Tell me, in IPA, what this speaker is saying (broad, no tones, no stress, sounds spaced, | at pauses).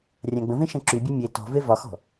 rʲ ã ɡ͡b ə̃ v ẽ ʃ ɐ̃ ǁ y bʲ ɔ mʲ e t ɔ̤ v e v ɒ x ɔ̤